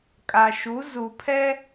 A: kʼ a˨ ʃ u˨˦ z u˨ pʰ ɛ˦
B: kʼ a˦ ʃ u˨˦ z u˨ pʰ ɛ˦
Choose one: A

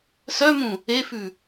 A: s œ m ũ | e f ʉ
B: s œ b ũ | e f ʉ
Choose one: A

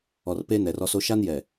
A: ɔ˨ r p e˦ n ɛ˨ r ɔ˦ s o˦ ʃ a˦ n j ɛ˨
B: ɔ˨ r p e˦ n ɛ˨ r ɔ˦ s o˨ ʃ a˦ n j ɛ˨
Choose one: A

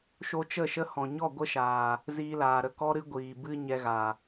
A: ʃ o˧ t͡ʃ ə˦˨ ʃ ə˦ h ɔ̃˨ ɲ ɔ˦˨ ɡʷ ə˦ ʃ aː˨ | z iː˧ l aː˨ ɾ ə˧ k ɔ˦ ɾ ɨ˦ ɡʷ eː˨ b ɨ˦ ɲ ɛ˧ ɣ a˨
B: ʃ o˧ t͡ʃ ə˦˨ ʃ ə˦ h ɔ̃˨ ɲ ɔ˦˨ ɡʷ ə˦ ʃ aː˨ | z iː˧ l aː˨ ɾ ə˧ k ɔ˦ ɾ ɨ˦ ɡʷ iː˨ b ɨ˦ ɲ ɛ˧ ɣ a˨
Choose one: B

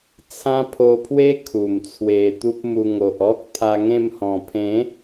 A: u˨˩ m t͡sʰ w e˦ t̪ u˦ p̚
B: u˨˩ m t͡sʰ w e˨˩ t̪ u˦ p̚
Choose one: B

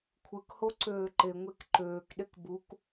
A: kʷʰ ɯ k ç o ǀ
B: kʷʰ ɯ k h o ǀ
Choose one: B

